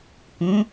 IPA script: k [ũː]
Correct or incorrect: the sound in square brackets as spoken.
incorrect: ũ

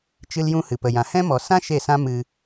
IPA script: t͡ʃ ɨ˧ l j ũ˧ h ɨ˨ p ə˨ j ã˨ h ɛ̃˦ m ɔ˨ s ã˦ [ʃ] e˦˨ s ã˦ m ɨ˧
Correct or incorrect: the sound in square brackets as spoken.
correct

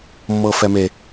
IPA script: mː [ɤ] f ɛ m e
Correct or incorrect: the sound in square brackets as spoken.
correct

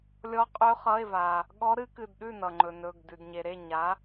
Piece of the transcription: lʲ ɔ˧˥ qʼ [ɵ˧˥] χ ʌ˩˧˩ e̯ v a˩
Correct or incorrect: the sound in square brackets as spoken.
correct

